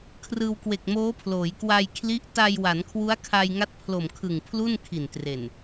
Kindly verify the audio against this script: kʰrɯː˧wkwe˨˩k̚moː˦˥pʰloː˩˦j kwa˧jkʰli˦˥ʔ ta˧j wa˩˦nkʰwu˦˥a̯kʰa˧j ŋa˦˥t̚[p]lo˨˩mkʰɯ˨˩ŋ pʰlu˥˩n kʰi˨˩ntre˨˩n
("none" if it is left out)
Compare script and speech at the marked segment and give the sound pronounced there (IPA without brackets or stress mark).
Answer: pʰ